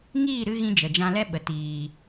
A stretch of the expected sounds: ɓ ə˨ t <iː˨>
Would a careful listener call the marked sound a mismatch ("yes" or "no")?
no